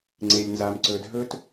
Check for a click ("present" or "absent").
present